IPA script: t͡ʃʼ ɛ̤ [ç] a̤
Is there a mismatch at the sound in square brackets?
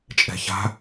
no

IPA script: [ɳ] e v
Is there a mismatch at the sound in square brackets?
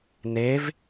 yes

